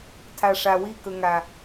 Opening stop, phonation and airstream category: aspirated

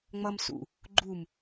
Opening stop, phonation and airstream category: click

